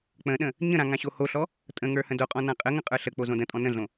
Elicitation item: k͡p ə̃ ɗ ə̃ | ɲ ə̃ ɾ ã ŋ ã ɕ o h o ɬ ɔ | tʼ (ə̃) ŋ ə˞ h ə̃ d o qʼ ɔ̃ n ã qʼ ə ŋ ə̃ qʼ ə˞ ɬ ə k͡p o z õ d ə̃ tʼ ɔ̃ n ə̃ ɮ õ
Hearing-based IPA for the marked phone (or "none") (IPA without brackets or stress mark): ə̃